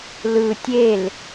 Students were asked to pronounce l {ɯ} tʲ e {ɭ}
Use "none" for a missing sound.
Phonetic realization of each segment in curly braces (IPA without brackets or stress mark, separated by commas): ɯ, l